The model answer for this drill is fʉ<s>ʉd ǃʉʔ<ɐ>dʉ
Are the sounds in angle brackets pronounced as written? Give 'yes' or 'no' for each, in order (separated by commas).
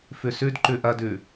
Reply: yes, yes